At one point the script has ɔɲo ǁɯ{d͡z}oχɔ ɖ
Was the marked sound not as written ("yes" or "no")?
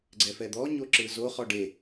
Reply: yes